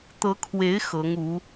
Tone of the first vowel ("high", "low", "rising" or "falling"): rising